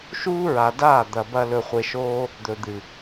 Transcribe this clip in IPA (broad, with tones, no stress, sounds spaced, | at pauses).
ʃ uː˦ ɹ a˨ d aː˦˨ d̪ ɐ˧ b ɐ˦ l ɵ˧ χʷ e˧ ʃ oː˦ | d̪ ɵ˨ d̪ ɨ˨